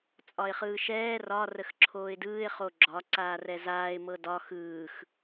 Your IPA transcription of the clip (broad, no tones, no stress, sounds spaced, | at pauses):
t͡sʼ ɒ ɪ̯ χ ɯː ʃ ɛː r ɒ r ə x ǁʰ oː ɪ̯ d ɯː ɪ̯ χ o ɡ͡ǁ ɒ ǀ aː r ɛ z aː ɪ̯ m ɤ d ɒ x ɯː x